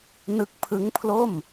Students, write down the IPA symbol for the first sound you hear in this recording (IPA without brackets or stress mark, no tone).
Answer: n